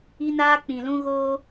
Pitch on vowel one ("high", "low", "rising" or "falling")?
high